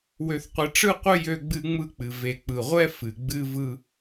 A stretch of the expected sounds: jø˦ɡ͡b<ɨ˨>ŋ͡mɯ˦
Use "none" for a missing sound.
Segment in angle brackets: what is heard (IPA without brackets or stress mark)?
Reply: ɨ˦